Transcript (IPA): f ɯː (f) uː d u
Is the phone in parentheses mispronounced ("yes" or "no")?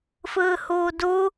yes